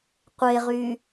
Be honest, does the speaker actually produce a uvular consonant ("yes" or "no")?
yes